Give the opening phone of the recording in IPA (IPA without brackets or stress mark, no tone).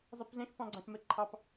zˤ